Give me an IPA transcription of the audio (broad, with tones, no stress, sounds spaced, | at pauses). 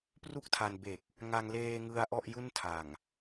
p r u˥˩ k̚ tʰ a˧ n b e˨˩ k̚ | ŋ a˧ ŋ l eː˧ ŋ ɯ˧ a̯ ʔ ɔ˥˩ ʔ j u˥˩ n tʰ a˨˩ ŋ